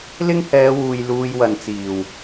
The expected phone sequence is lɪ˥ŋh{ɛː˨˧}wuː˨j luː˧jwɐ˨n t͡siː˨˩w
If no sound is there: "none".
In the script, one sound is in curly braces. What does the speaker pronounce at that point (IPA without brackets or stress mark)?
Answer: ɛː˨˧